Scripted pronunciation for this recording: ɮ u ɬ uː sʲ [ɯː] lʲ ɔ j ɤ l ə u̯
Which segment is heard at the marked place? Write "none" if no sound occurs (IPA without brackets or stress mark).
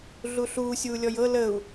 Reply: uː